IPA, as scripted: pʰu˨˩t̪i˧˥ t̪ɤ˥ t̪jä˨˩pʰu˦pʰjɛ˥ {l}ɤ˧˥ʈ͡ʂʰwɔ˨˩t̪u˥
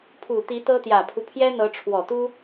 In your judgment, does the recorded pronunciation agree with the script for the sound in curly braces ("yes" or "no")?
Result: no